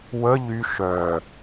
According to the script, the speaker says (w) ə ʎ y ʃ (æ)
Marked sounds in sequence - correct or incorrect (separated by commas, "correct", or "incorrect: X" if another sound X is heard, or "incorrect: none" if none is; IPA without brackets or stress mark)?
correct, incorrect: œ